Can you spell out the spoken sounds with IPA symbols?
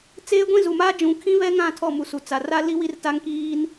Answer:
t͡s eː˦ ɡʷ ĩ˦ z u˨ m aː˦ d͡ʒ ũ˨˦ kʰ ĩ˦ β ɛ˦ ŋ ã˦˨ tʰ ɔ˦˨ m u˨ s u˨ t͡s a˨ r a˦ l i˦ w i˦ r t a˦ ŋ k iː˦ n

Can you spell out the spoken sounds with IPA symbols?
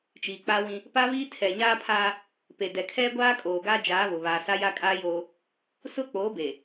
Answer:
t͡ʃ iː˨ k͡p a˦ w ĩ˦ | p a˦ β iː˦ tʰ ɛ˨ ɲ aː˦ pʰ aː˦ | p e˨ d ɛ˨ kʰ ɛ˦ ɡʷ aː˦ kʼ oː˨ ɡ aː˦ d͡ʒ aː˨˦ β ʊ˨ β aː˨ s a˦ j a˦ kʼ a˦ j oː˦ | s ʊ˦ k͡p oː˨˦ b e˨

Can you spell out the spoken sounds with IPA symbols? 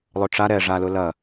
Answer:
lˠ ɵ ʈ͡ʂ a ɾ ɛ ʐ a l ʊ l ɐ

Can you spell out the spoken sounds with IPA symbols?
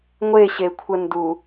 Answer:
ŋʷ e ɕ e kʷʰ ə n d u

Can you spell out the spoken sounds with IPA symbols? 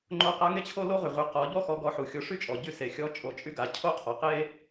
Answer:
ŋ͡ǃ o˧˥ q a˧˥ ŋ e˥ t͡ɕʰ o˥ l o˥ ʁ y˩ ʁ y˩˧ q ɔ˩˧ ʎ ɔ˥ x ɔ˧˥ ɡ ɔ˧˥ ħ u˩˧ xʲ o˧˥ ʂ y˥ t͡ʃʼ ɔ˩ ɟ y˧˥ s e˩ xʲ ɔ˧˥ t͡ʃʼ o˩˧ t͡ʃʼ y˧˥ ɡ a˩˧ cʰ o˥ qʰ ɔ˩ q e˥

